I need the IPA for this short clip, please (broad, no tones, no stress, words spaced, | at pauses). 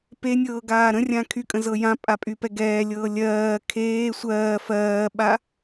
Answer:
penʲɤː ɡaːɾə̃rʲã kʰykʼə̃ zɤjã pʼapʼypɛɡɛː lʲɤːlʲɜː kʰeː sʷɜː fɜːɓa